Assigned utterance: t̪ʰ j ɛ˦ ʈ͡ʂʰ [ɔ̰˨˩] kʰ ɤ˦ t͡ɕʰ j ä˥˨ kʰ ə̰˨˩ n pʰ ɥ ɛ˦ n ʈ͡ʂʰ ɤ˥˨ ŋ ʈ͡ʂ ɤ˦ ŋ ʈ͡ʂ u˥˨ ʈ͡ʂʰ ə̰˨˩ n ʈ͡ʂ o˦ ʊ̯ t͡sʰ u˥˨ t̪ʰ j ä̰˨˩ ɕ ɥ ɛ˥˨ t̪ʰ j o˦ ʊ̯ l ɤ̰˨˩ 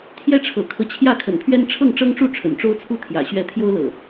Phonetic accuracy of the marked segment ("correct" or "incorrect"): incorrect